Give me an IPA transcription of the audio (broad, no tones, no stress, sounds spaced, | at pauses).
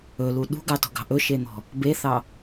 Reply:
ɵ l u ɗ ṳ ɡ ɑ t ɔ̤ ɡ ɑ̤ ʔ ɵ ʃ e n̪ ɔ̤ | b e θ ɑ